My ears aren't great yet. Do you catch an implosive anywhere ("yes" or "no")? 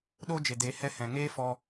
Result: yes